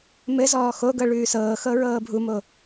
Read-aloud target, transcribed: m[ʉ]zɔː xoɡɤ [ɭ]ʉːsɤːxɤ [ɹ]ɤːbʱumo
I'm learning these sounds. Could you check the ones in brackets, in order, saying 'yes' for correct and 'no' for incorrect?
no, yes, yes

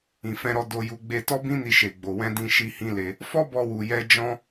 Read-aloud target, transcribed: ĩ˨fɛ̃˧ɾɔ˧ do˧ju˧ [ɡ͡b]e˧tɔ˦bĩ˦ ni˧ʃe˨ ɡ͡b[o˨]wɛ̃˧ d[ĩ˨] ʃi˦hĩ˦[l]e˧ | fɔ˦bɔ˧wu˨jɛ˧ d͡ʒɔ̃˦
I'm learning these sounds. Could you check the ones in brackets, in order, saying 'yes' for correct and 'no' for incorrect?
yes, yes, no, yes

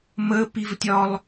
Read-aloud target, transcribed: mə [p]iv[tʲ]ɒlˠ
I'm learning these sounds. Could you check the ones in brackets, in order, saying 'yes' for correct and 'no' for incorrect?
yes, yes

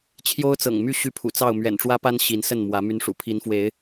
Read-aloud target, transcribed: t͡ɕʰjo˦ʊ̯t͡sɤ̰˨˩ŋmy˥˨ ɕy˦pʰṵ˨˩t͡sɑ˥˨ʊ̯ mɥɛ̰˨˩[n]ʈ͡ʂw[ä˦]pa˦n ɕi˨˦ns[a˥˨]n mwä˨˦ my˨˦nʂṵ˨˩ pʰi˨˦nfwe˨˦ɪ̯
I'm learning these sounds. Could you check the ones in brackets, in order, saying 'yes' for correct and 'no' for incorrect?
yes, yes, no

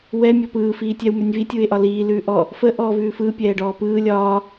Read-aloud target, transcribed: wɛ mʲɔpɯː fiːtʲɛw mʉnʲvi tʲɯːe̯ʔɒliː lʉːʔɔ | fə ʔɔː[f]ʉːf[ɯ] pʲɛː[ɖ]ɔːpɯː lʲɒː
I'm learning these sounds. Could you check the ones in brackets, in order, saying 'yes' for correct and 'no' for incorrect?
no, yes, yes

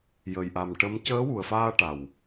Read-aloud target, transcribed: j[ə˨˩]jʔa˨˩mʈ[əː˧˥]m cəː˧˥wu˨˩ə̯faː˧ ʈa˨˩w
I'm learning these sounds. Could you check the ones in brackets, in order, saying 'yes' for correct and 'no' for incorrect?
yes, no

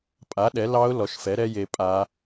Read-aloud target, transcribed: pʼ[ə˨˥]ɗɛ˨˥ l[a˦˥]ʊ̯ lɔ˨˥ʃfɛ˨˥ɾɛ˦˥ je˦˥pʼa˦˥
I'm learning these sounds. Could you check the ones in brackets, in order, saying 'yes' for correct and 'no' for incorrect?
no, no

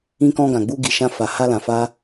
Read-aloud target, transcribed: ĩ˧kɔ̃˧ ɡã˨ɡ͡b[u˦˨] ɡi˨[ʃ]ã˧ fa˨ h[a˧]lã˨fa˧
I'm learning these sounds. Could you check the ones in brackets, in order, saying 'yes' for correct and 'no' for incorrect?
no, yes, yes

